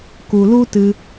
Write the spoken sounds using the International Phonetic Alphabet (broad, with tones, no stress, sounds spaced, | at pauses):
k u˨ l u˦ t ɨ˧